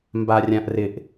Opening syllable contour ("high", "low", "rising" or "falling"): low